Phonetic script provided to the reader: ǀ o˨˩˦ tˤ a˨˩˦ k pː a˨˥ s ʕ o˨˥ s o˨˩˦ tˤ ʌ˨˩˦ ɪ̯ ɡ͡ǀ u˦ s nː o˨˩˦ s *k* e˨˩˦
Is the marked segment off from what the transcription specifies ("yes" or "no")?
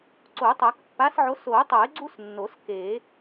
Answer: no